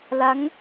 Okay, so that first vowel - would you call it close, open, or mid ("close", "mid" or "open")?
open